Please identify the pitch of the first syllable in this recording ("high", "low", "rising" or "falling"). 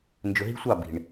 low